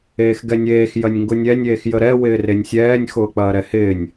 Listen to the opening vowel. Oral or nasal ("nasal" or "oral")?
oral